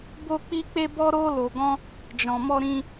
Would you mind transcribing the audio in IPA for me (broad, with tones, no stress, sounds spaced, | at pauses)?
b o˧ k͡p i˧ k͡p e˧ b ɔ˧ ɾ o˧ l o˨ ɡ ɔ̃˧ | d͡ʒ ɔ̃˨ m ɔ˧ ɾ ĩ˧